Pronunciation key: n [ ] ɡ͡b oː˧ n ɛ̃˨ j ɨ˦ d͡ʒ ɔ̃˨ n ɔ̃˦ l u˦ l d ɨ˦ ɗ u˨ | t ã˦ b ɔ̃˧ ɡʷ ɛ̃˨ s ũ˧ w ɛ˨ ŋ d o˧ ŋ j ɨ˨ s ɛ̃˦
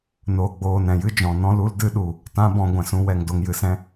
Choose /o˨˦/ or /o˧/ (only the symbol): o˧